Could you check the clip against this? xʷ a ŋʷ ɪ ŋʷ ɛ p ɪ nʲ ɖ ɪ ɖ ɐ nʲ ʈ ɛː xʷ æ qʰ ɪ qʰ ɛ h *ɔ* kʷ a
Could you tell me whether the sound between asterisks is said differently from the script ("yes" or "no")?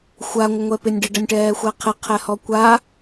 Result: no